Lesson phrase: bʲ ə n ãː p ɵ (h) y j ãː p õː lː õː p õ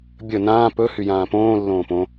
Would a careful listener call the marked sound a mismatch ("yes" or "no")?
no